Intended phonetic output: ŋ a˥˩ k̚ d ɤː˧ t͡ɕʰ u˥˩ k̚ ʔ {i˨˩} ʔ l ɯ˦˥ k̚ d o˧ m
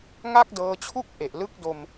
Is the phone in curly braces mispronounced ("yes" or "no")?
yes